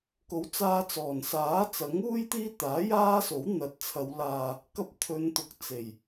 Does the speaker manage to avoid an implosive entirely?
yes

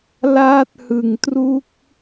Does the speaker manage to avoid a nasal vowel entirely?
yes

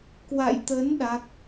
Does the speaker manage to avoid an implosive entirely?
no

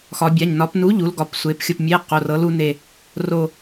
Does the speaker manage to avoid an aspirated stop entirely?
yes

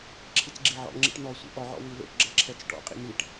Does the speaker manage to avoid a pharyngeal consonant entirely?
no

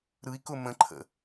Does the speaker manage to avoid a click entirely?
no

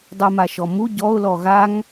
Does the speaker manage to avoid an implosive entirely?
yes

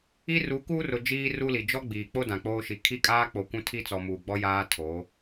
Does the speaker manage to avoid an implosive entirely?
yes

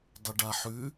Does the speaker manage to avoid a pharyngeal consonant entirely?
no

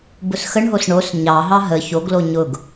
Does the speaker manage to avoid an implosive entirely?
yes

